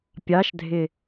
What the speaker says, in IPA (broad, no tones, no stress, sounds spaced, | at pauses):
pʲ ɑ ʃ dʱ ɪ